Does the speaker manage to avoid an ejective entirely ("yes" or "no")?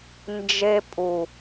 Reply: no